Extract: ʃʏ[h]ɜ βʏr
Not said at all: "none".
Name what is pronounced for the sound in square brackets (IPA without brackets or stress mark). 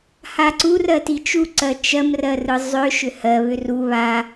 h